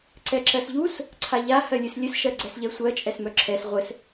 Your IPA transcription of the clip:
ǀ ɛ ǁ ɜ s ʎ u s | ǀʰ a ʎ a h ɜ lʲ ɨ s lʲ ɘ s ʃ ɜ ɡ͡ǀ ɛ s ʎ ɛ sʷ ɜ t͡ʃʼ ɛ s m œ ǁʰ ɛ s ʁʷ ɘ s

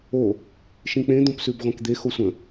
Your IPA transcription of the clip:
o | ʃ ĩ k͡p ẽ d̪ õ p s ʉ b ʁʷ ẽ k d̪ e x o sʷ ə̃

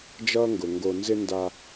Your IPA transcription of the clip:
d͡ʒ ʌː˦ ŋ ɡ ʊ˨ ŋ ɡ o˨ n z ɪ˦ n d a˦

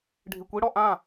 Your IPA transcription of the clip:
ɖʱ i kʷ i ɽ ɔ ʔ ã

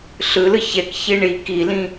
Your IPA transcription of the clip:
ɬ ɯ l ɯ ç ɛ k ç i ɳ i k i l ĩ

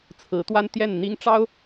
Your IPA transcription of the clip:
t͡sʰ ɹ̩˧˥ t̪ w a˥ n t̪ j ɛ˥˩ n n̪ i˥ ŋ ʈ͡ʂ ɑ˥ ʊ̯

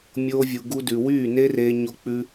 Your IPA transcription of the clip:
mʲ oː˧ vʲ u˨ ɡ u˧ d ʉ˨ w yː˦˨ n e˦ r eː˧ ɲ o˧ k͡p ʉ˧

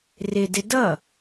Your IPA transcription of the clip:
r ɪ d ɪ d ʌ

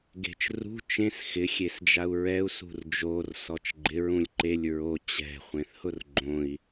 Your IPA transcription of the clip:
ɡ e̤ t͡ʃ r ṳ t͡ʃ ẽ s x ɪ xʲ e s d͡ʒ a u̯ ɹ ɛ u̯ s ṳ r d͡ʒ o r s ɔ t͡ʃ ɡ͡ǃ ɪ ɹ ũ lʲ ǃ e lʲ ɹ o t͡ɕ ɛ̤ χʷ ẽ θ h ʊ r ɡ͡ǃ õ i̯

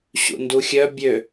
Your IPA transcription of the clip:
ɕ ṵ n d u xʲ œ bʲ ø

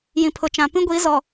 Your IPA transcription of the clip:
j ĩ˨ pʰ ʊ˨ t͡ʃ ã˨ p ĩ˦ ɡʷ i˨˦ z ɔ˨

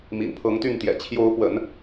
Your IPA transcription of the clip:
m ḭ˨˩ n pʰ ɤ˧˥ ŋ t̪ y˥˩ n t̪ j ɛ̰˨˩ t͡ɕʰ j o˧˥ ʊ̯ p w ə̰˨˩˦ n

